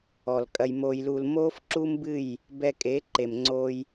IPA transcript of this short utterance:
ɔ˨lkʼɐ˧j mo˧jlu˧l moː˦fǁu˦mbɨ˦˨j | bɛ˧kʼe˨˦ǃe˨mŋ͡ǀoː˧j

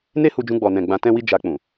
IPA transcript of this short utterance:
ne˦hu˧d͡ʒũ˧ ɡ͡bɔ˨nɛ̃˨ ɡ͡bã˧tɛ̃˦wi˦ d͡ʒa˧k͡pũ˨

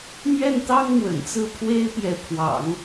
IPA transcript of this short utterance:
mɥɛ˥˩nt̪ɑ˥ŋ mwə̰˨˩nt͡sɹ̩˥˩ pʰwe˥ɪ̯pjɛ˧˥ pʰwɑ̰˨˩˦ŋ

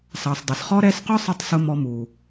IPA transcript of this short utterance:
sɑ˨sdˤɪ˨sχɔ˦ ɾɛ˧sqʊ˦sˤə˧tˤ sʊ˦mɔ˧mu˨

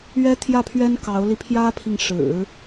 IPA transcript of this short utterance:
ɥɛ˥t̪ʰjä˥˩pʰɥɛ˥n kɑ˧˥ʊ̯li˧ pʰjä˥pʰi˨ŋ ʂɻ̩˨˩˦

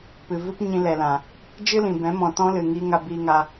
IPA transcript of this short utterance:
pɨ˨vɨ˦p ɲĩ˧lɛ˨lã˨ | d͡ʒɨ˦lĩ˨bɛ̃˨˦ mɔ̃˨ tɔ̃˦lɨ˨ ŋiː˧ŋa˧biː˧ŋa˧

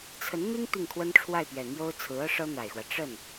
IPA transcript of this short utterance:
t͡sʰə˧˥nn̪i˥ŋ t̪i˥˩ŋkʰwə˥nʈ͡ʂʰwa˥˩ɪ̯pɥɛ˨˩ n̪jo˥ʊ̯t͡sʰɹ̩˧˥ɤ˥ ʂɤ˥n̪a˨˩ɪ̯xwä˦ ʈ͡ʂə˥˩n

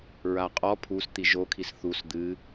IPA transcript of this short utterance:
ɹaqʼɔ pʰust̪i ʒokʰis θus d̪ɨ

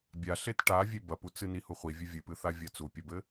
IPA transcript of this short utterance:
bʲa ɬetʈavʲe bɐput͡sɨni huχʷivʲɨ vʲɨpɨθa vʲɐt͡supʲɐbɘ

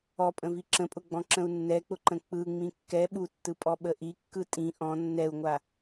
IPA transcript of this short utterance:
ɔpʼə̃vi ǁə̃pʼʊɡ͡bɔ̃ ǁə̃u̯nːɛk͡pʊ ǃə̃k͡pɯ ŋ͡mĩkːɛ ɓutːɯpʼɔ ɓəʔikːɯ tʼĩ ʔɔ̃ nːɛu̯ŋʷa

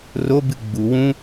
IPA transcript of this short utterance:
robɨ ɡ͡bu wũ

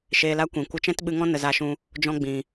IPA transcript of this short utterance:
ʃeː˧la˦kʷĩ˨ kʷə˧t͡ʃɛ̃˦tɓɨ˧ŋɔ̃˦ nə˧za˧ʃũ˧ | d͡ʒɔ̃˧ ɡ͡bĩ˨

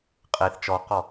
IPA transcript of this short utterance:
qʼeθ t͡ʃɔqɔ

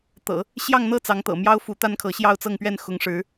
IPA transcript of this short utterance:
t̪ɤ̰˨˩˦ | ɕjɑ˥˧ŋn̪ɤ˥˩t͡sɑ˧˥ŋt̪ɤ̰˨˩ mjɑ˥ʊ̯fu˧˥ t̪a˥nkʰɤ˧˥ ɕjɑ˥˧ʊ̯t͡sɤ˥˧ŋpɥɛ˥˩n xʊ˧˥ŋʂɻ̩˧˥

